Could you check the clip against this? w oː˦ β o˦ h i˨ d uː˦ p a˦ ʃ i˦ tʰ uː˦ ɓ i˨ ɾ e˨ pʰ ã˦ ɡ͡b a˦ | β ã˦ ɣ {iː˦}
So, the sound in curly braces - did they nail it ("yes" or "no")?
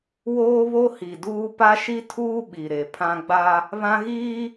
yes